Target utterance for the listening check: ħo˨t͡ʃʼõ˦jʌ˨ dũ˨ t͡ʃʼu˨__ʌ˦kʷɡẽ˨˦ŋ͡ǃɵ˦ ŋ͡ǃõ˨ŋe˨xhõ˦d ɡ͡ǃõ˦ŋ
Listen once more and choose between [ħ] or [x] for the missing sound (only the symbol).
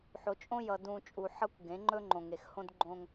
ħ